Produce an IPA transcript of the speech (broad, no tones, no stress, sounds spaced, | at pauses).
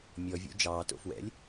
mʲ ɔ vʲ o̰ d͡ʒ ɑː t o̰ f w ɛ̰ lʲ